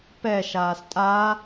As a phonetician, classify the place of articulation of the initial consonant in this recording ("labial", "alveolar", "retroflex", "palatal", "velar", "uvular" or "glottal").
labial